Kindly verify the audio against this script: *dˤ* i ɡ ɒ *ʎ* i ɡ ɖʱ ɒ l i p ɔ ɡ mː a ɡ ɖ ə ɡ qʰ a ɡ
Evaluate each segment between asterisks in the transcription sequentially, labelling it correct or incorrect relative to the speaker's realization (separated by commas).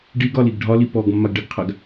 incorrect, incorrect